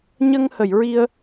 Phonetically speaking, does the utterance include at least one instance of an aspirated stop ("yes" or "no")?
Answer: no